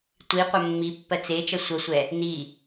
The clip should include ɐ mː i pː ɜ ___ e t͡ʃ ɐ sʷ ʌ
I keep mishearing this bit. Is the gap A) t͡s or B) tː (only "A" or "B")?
A